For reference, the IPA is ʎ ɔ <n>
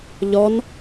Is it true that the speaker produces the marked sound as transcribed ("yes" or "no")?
yes